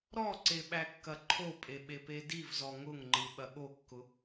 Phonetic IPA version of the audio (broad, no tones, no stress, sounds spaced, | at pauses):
ɾ ɔ ǀ e ɓ æ kː ɐ ǃʰ o pʼ e ɓ e p e d i v z ɔ ŋ ʊ ŋ ŋ͡ǃ ɯ ɓ ɐ ɠ o kː ʊ